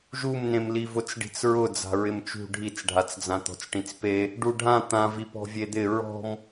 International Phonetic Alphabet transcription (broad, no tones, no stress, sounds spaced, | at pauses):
ʒ u m n ẽ m l i v ʊ t͡s ɖ i̤ t͡s ɹ ʊ d͡z a̤ ɹ ɪ m t͡ʃ ṳ ɖʱ i t͡s ɖʱ a t͡s d͡z ã t̪ ɔ̤ t͡s ʈ ĩ t͡s p e | ɖ u ɖʱ ã t̪ ã v i p ɔ̤ vʲ e d̪ ɪ ɹ ɔ̤ m